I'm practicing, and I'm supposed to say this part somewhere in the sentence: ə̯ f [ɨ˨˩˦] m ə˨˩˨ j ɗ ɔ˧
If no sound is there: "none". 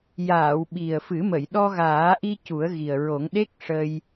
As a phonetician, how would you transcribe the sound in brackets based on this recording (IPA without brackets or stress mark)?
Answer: ɨ˨˩˦